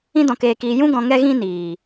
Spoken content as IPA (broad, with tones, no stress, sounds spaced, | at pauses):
ĩ˧ d ɔ̃˨ k eː˨ k iː˨ j ũ˧ ɡ ɔ̃˨ ŋ ɛ˧ ɣ ĩ˧ n iː˨